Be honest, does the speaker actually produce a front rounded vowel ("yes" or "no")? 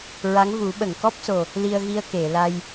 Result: no